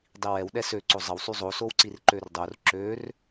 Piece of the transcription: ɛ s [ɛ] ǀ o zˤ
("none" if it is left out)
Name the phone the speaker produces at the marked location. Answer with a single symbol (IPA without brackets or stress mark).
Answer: ø